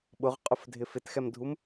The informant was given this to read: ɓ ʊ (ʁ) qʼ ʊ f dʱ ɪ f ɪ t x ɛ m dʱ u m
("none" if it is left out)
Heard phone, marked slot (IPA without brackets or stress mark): ʁ